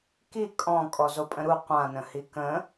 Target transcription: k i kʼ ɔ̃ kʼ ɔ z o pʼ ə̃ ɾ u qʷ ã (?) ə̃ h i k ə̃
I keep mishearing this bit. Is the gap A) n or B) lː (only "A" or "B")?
A